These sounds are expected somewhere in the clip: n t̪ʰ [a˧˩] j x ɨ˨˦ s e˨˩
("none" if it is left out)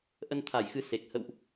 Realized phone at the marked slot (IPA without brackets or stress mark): a˧˩